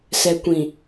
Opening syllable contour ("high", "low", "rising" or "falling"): low